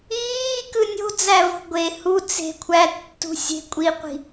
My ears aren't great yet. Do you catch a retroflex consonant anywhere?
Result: no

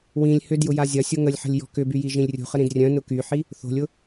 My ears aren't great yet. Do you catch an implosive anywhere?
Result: no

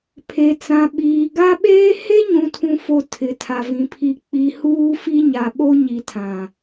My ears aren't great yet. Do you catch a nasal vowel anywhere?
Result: yes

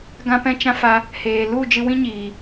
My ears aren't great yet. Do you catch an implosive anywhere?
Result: no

